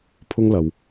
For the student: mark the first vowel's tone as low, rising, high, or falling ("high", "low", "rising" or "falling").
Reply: high